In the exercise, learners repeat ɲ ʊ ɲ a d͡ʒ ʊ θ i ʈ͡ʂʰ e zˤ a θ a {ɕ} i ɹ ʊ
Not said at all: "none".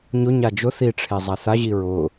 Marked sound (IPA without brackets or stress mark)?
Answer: ʑ